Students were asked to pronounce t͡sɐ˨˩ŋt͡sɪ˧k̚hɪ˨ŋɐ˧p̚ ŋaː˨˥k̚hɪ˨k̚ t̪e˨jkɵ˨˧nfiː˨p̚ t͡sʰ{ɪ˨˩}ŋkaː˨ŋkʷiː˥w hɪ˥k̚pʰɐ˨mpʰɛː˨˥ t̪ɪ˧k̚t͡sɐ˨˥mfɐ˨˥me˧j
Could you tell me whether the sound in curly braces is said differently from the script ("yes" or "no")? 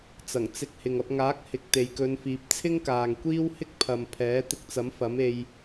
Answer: yes